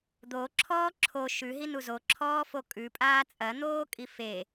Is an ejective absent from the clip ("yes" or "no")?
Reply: no